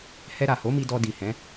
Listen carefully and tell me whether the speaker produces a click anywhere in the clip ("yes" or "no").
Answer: no